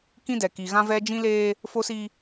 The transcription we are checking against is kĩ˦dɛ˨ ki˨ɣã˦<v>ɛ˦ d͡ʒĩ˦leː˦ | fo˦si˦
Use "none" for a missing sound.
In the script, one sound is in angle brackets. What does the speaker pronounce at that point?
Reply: v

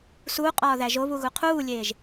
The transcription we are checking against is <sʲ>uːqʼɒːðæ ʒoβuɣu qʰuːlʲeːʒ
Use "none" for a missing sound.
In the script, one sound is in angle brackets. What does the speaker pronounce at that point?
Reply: s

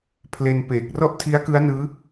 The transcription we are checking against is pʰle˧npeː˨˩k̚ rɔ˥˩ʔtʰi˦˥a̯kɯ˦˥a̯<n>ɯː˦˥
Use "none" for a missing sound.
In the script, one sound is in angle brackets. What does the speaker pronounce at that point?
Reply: n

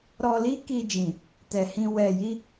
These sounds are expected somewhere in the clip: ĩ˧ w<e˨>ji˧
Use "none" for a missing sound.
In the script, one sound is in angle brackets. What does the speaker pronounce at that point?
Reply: ɛ˨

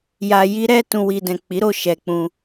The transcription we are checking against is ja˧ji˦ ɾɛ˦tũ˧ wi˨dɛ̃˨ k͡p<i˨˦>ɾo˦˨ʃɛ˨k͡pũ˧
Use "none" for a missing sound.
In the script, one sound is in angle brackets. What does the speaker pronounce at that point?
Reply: i˨˦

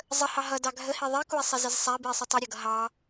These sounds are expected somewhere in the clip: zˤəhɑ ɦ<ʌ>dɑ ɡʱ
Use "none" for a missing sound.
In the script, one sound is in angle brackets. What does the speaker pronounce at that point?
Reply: ʌ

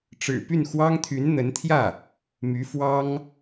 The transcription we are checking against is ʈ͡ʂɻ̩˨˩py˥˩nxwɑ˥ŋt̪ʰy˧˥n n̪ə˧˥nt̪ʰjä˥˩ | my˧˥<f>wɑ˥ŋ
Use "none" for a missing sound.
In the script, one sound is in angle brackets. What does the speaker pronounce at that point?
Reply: f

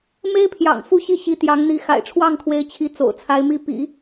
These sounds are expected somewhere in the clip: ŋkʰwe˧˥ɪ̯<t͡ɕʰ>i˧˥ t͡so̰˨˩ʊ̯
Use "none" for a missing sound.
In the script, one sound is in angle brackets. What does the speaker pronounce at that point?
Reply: t͡ɕʰ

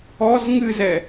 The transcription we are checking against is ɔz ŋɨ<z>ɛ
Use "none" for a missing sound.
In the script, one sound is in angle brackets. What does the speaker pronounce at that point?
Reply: z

